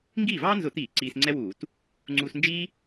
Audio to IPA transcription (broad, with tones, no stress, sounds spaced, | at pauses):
ŋ ɡ iː˥˩ v ɑː˥ n z ʊ˧˩˧ t̪ iː˧˩˧ ǀ iː˧ s ŋ͡ǀ ɛ˥ w uː˧˩˧ t | ŋ͡ǀ uː˧ s n d͡ʒ iː˥